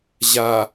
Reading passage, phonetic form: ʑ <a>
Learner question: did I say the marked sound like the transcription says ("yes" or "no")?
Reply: yes